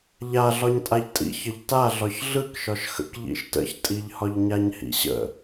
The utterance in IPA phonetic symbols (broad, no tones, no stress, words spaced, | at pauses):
ʎaɮɒɲ tʼaʎtʼḭ çəʎta ɮɒçɮɯkʃɒʃ xə̰k ʎḭʃtə̰çtʼiʎ hɒʎɲaɲhḭɕə̰